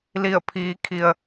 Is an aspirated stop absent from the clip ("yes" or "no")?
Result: no